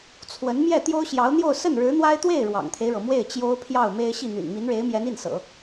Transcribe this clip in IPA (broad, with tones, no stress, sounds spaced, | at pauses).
t͡sʰ w ə˧˥ n m j ɛ˥˩ t̪ j o˥ ʊ̯ ɕ j ɑ˧˥ ʊ̯ n̪ j o˥˧ ʊ̯ s ə˥˩ n ɻ ɻ̩˧˥ n̪ w a˥ ɪ̯ t̪ w e˥˩ ɪ̯ ɻ w ɑ̰˨˩ ŋ t̪ʰ e˦ ɪ̯ ɻ ɤ˩ m w e˥˩ ɪ̯ t͡ɕ j o˥ ʊ̯ pʰ j ɑ˥˩ ʊ̯ m e˥ ɪ̯ ɕ i˥˩ n̪ y̰˨˩ n m i˧˥ n ɻ e˧˥ ɪ̯ m j ɛ˧˥ n i˥˩ n s ɤ̰˨˩˦